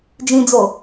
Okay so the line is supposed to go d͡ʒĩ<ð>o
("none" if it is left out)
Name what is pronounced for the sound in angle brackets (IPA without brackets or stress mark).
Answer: d͡z